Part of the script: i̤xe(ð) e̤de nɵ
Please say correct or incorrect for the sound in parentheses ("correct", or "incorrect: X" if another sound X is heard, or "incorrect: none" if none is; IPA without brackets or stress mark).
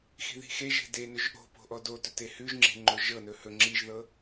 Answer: incorrect: ʒ